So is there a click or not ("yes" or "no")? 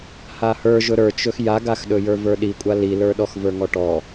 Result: no